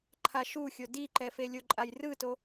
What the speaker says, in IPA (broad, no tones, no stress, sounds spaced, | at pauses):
ǃʰ a ʃ u xʲ o d i ǃ ɛ f e lʲ o ǃʼ a j r ɯ t o